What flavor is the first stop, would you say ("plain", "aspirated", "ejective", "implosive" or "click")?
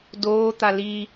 plain